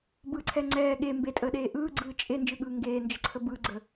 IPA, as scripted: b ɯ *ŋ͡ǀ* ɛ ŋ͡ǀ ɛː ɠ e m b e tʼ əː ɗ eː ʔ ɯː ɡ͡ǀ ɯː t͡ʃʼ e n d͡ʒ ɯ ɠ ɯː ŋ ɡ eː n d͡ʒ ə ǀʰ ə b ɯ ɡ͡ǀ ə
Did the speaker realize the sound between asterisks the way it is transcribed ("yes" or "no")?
no